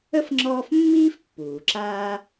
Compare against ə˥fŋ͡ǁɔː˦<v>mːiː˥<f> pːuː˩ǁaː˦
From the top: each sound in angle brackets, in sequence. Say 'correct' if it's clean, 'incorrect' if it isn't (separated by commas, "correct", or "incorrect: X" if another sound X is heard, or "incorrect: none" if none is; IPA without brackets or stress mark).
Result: incorrect: f, correct